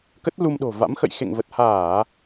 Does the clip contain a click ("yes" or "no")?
no